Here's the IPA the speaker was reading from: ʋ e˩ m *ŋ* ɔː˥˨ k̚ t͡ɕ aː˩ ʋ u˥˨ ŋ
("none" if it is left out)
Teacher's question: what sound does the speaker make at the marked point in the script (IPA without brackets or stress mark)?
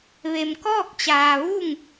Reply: k